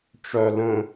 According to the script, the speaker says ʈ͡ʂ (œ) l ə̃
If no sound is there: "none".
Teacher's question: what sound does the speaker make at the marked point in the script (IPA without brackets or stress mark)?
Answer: œ